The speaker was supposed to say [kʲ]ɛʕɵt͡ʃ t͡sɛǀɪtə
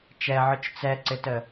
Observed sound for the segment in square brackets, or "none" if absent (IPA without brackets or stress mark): t͡ʃ